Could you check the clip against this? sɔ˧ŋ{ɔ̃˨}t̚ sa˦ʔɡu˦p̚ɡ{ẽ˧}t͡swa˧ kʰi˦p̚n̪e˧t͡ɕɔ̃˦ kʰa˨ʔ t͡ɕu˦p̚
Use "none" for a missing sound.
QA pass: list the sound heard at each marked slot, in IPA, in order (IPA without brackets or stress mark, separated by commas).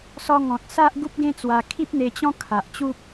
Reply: ɔ̃˨, ẽ˦